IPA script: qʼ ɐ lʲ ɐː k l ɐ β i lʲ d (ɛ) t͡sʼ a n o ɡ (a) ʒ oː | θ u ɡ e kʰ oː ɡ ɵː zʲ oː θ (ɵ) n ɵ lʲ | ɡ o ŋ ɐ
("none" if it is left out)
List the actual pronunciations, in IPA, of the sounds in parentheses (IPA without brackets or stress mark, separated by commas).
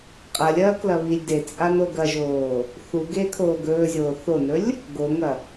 e, ɐ, o